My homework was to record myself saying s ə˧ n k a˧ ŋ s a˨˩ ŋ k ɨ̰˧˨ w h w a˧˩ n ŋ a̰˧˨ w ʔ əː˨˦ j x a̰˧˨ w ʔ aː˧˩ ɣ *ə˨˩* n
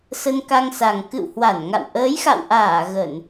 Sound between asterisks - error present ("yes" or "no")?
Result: yes